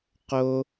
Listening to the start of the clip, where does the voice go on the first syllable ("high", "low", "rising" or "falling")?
high